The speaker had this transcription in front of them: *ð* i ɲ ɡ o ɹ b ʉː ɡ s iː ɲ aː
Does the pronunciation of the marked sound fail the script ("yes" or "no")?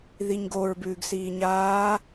no